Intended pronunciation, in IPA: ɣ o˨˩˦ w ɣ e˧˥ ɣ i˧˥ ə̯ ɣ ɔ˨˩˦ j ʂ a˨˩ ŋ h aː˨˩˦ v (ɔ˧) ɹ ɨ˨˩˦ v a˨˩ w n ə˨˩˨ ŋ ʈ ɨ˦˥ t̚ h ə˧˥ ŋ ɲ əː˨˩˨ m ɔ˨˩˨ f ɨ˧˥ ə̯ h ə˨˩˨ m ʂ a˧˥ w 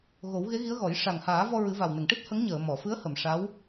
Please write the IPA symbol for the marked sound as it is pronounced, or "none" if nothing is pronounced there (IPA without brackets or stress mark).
ɔ˧